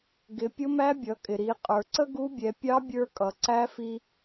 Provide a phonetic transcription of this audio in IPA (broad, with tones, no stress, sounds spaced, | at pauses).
ɡ ɪ˩˧ pʲ ʊ˧˥ m æ˧˥ bʲ ʌ˩˧ kʼ ɪ˩ ɾ i˩˧ qʼ ə˞˩ ǀ ə˥ ɡ u˧˥ bʲ ɛ˩˧ pʲ ɑ˧˥ bʲ ə˞˧ kʼ ʌ˩ ǀ æ˧˥ f i˧